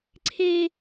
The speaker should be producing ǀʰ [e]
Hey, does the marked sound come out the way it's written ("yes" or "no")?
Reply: yes